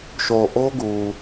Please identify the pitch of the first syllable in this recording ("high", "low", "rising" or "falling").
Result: low